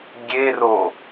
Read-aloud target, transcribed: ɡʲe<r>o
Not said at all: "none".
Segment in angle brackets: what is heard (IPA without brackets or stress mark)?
r